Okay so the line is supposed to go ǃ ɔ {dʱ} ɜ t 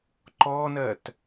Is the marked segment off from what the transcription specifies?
yes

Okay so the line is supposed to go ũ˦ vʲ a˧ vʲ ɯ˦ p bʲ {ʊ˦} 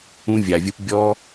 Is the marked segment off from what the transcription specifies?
yes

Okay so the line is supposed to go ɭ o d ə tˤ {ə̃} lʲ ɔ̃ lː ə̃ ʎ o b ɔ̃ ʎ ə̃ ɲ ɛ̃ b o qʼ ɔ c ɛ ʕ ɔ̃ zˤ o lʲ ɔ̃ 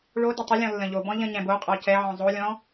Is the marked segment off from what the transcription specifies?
yes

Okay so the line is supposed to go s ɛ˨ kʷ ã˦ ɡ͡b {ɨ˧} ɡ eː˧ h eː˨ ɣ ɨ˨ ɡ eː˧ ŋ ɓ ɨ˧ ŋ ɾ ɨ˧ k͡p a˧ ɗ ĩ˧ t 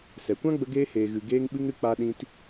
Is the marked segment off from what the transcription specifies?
yes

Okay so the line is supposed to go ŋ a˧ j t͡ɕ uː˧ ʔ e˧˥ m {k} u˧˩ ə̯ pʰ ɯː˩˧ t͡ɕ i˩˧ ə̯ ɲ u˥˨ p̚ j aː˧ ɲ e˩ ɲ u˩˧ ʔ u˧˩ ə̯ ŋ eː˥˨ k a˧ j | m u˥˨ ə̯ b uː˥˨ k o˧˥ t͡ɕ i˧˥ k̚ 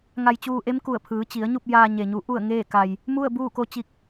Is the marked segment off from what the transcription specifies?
no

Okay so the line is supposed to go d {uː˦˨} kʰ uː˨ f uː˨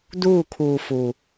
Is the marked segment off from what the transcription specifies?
no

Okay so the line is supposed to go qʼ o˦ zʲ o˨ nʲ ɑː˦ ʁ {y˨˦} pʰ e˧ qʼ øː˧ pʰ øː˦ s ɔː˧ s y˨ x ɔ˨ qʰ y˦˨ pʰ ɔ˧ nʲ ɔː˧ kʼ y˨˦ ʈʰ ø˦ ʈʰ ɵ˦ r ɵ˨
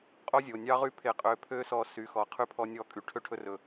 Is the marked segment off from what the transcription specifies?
yes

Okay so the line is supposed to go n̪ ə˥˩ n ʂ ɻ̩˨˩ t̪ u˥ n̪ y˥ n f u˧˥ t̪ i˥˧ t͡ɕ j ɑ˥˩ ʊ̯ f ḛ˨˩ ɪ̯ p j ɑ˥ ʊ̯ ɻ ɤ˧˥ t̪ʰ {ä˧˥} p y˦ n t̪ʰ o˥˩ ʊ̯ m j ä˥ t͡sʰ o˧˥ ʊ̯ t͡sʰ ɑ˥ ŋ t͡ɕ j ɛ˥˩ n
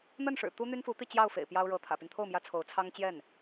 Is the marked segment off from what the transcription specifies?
yes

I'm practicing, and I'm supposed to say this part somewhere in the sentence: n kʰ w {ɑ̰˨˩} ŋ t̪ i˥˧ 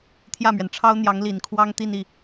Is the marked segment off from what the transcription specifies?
yes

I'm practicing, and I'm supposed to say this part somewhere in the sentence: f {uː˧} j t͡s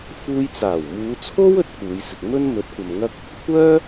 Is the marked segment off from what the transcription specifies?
no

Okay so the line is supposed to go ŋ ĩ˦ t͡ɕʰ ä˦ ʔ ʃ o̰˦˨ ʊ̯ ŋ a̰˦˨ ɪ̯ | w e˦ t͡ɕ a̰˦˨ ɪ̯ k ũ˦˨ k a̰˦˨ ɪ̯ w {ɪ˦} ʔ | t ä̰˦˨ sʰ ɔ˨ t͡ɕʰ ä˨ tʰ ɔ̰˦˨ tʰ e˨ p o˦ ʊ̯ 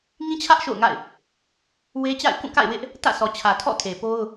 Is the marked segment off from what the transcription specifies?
no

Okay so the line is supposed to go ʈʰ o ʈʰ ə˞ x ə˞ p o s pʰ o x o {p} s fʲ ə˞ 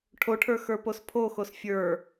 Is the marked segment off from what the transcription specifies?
yes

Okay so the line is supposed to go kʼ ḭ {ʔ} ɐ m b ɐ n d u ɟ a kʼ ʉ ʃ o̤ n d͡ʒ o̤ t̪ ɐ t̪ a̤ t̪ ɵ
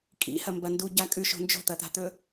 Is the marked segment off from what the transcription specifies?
yes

